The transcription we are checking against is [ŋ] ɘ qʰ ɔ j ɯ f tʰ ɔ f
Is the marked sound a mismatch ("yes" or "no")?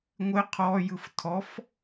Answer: yes